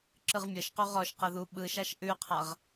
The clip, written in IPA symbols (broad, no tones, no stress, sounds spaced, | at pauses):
ǁ ɯ ʁ mʲ ɤ ʃ q u ʁ ɔ ʃ q ɤ ð u ɓ ɯ ʃ a ʃ ʔ ʉ qʰ a ʁ